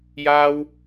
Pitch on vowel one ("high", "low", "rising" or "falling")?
high